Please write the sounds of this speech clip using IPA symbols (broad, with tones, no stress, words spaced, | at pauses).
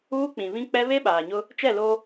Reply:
uː˦ k͡pĩ˨ βĩ˦k͡pɛ˦ βe˦ɓaː˨ɲʊ˦ | t͡ʃɛ˦˨lo˦